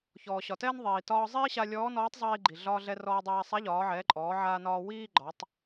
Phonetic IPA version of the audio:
ç ɔː˩ ɕ ɒ˩ t ɛː˥ n ðˤ iː˩ t ɒː˧ zˤ iː˥ ɕ a˧ lʲ ɔː˧˥ n ɔː˧˥ tˤ zˤ iː˧ ɡ͡ǃ i˩ ɮ ɒː˧ ɮ ɛ˧ r ɔː˧ dˤ aː˧ sˤ a˧˥ ʎ ɒː˩˧ ʕ ɛː˩˧ ǃʼ ɔː˩˧ ʕ aː˧ n ɒː˧ w iː˥ ɡ͡ǃ ɒ˩˧ tˤ

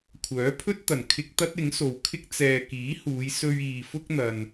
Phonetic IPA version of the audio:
kʷʰ œː˨˥ pʰ ɵ˥ t̚ t̪ ɐ˨˩ n kʰ ɪ˧ k̚ t̪ ɐ˥ t̚ ɪ˨˥ ŋ s o˨ w kʰ ɪ˥ k̚ t͡s ɛː˨ k iː˨˥ h uː˨˧ j s ɵ˧ ɥ iː˨ f ʊ˥ k̚ n̪ ɐ˨ n

